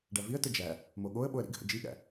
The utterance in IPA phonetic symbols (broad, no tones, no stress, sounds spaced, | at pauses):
ɖ æ v i ə̯ t ə d͡ʒ æ | m o ɠ o ə̯ ɓ o ə̯ ɾ ḭ ɡ h ə̰ d͡ʒ i ɠ æ̰